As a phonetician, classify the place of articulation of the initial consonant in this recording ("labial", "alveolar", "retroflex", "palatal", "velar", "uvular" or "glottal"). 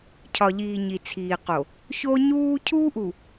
palatal